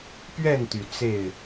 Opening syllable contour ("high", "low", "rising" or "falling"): falling